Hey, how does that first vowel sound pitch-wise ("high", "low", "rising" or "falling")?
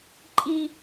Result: high